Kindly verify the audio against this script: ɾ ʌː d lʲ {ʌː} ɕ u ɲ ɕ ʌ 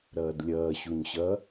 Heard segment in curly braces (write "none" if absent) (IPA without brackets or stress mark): ʌː